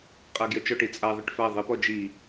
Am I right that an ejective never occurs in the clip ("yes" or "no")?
no